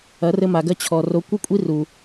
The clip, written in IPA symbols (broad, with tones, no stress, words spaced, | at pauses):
ɐ˨˦rɘ˧ma˨ɡɐ˧ t͡ɕʰɔ˨ ro˨˦kʷɨ˦kʷʼi˦ ru˨